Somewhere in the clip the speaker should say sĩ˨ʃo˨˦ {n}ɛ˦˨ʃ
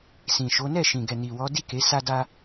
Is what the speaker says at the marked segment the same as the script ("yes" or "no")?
yes